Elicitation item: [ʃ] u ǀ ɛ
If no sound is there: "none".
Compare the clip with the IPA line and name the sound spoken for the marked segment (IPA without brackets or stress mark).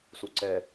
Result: s